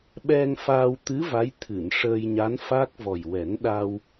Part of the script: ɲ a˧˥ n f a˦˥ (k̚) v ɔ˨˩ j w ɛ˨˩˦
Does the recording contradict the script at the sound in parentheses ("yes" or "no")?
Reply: no